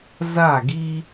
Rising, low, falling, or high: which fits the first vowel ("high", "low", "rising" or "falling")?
falling